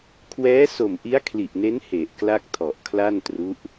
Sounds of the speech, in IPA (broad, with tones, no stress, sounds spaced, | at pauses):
kʰ w ɛː˦˥ s o˨˩ m ʔ i˦˥ a̯ kʰ l i˨˩ ʔ n e˦˥ n h e˨˩ ʔ k l a˥˩ k̚ tʰ ɔ˨˩ ʔ kʰ l a˥˩ n t r u˦˥ ʔ